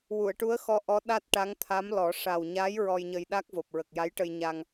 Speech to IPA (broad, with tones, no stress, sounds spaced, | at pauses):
w u˨˩˨ ə̯ ʈ u˧˥ ə̯ x ɔ˧˥ ʔ ɔ˧˥ ɗ a˦˥ t̚ ʈ a˧˥ ŋ t̪ʰ a˧˥ m l ɔ˨˩˦ ʂ a˨˩ w ɲ a˧˥ j ɹ ɔ˧ j ɲ ə˧ j ɗ a˦˥ k̚ v o˨˩ p̚ ɹ ə˨˩ k̚ j a˧˥ j ʈ ə˧ j ɲ a˧ ŋ